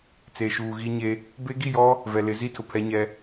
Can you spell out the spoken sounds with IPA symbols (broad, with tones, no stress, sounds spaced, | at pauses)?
t͡s eː˨ ʃ uː˨ ɣ i˦ ɲ e˦ | b e˦ ɡ i˦˨ j ɔ˦ | v ɛ˨ l ɪ˨˦ z i˦ tʰ ʊ˨ pʰ ɛ˦ ɲ ɛ˦